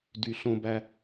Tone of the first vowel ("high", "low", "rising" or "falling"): low